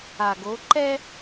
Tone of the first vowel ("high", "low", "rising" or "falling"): low